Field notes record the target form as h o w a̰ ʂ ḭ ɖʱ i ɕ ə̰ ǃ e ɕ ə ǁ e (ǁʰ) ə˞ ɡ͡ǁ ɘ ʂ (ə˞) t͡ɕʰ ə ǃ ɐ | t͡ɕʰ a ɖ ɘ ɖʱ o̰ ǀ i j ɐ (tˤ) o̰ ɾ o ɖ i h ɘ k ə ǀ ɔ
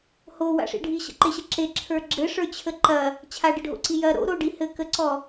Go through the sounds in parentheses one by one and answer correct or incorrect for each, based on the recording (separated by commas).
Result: correct, correct, incorrect